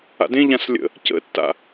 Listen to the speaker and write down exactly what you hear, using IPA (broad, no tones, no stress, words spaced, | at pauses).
a̰dẽʎãs lʲə̰ | cə̰tːa̰